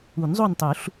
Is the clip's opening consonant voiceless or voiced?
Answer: voiced